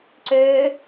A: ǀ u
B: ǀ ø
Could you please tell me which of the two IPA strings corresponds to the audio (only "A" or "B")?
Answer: B